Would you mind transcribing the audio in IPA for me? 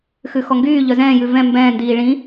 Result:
x ʉ x ɔ ŋ ɡ yː ʎ œ z ɛ̃ː j ʉ v ɛ̃ m b ɛ̃ː n d iː ɭ ĩ

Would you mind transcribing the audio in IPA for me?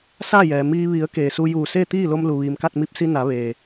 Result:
s aː˥˨ j ɛː˩ m iː˧ ʋ i˩˧ ə̯ k eː˩ s u˧ j uː˧˩ s eː˥˨ t̪ iː˥˨ l o˧ m l u˩ ʋ iː˩ m k a˥˨ t̚ m i˧ p̚ s i˧ n a˩˧ ʋ eː˩

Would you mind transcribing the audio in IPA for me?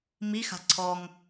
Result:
m i x a̤ ǀʰ ɔ ŋ

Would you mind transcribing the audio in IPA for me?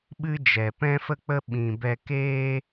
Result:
ɓ ɨ˦ d͡ʒ ɛ˨ p ɛ̃˦ f ə˦ k͡p ə˦ ɓ ĩ˨ b ɛ˧ k eː˧

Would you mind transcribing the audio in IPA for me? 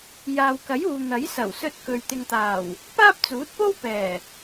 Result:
j aː˨ w k ɐ˨˥ j uː˨ n̪ ɐ˨˥ j s ɐ˨˩ w s ɵ˧ t̚ k ɵ˨ ɥ t̪ ɪ˨ ŋ t̪ aː˨˩ w | p aː˥ p̚ t͡s uː˨˥ t̚ p o˥ w p ɛː˨˩

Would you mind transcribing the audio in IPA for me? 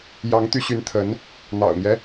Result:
j ɑ˧˥ ŋ t̪ y˧˥ ɕ y˧˥ n t̪ʰ ə˧˥ n | n̪ ɑ̰˨˩ ʊ̯ n̪ j ɛ˦

